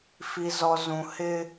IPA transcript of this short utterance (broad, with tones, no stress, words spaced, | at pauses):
fi˨zɔ˨ zũ˨ hɪ˦